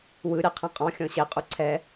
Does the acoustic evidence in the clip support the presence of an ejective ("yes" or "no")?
yes